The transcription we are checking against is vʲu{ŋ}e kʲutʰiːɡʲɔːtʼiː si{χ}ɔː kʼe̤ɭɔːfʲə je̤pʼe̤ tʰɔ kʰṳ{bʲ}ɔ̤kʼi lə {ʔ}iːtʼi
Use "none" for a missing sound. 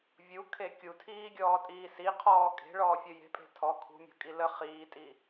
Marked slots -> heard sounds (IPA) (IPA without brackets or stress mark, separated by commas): kʰ, qʰ, mʲ, χ